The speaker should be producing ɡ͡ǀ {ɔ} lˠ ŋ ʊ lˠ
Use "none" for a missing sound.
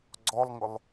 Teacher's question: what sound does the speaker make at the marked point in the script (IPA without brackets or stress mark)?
ɔ